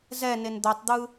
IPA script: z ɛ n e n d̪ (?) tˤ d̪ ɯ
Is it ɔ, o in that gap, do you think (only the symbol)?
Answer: o